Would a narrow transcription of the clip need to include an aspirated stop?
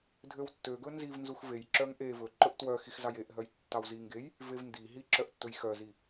no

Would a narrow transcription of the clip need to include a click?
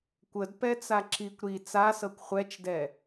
yes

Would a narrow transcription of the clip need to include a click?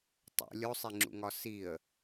yes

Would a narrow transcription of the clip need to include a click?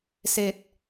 no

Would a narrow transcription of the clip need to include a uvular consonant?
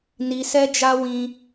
no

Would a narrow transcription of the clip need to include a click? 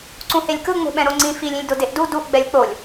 yes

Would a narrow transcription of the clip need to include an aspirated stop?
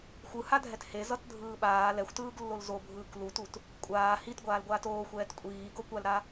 no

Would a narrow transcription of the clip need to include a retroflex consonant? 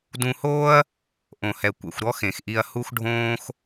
yes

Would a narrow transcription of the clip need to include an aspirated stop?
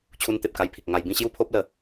yes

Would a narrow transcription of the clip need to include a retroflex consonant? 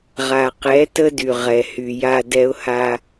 no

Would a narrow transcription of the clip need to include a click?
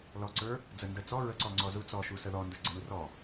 yes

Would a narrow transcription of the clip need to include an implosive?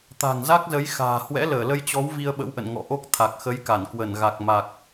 yes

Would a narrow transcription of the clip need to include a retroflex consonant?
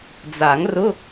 no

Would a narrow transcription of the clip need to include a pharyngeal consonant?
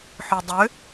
yes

